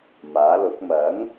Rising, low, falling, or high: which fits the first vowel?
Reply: rising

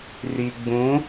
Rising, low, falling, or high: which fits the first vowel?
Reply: low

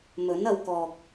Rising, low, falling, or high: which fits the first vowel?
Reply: rising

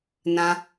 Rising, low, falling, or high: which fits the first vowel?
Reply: high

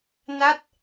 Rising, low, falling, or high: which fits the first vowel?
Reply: falling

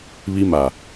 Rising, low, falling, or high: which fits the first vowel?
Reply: high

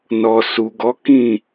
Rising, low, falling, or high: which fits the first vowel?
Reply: low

